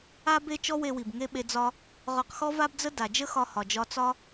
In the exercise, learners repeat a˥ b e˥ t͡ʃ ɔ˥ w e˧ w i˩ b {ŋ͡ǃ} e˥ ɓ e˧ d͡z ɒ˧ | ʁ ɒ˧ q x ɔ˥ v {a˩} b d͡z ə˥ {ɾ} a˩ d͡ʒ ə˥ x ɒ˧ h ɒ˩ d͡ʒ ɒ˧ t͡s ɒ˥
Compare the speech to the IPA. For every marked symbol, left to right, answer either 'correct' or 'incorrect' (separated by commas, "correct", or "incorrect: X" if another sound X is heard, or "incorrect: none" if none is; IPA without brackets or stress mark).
incorrect: ŋ, incorrect: a˥, incorrect: d